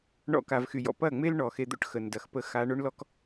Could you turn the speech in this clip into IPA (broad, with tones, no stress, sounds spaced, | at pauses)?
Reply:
ɳ ɔ̰˧ k a˨ v x y˨ j ɔ̰˨ p ɐ˦˨ ŋ͡m e˦ l ɳ ɔ˨ x e˧ d̪ o̰˦ ʈ x ə˨ n d ɐ˨ x p ə˧ x a˧ ɳ o˦ ɳ l ɔ˦ k